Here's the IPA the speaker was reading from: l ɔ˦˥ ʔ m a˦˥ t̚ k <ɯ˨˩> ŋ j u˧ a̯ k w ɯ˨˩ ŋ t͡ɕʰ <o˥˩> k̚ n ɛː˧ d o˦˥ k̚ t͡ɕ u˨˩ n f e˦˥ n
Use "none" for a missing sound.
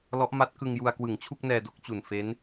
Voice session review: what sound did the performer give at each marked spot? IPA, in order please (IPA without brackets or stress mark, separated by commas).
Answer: ɯ˧, u˥˩